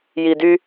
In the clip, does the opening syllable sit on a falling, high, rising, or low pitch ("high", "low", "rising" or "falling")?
low